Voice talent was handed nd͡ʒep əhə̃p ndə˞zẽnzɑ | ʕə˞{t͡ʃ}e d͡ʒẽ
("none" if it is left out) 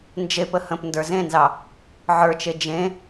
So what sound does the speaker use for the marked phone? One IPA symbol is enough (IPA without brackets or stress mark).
t͡ʃ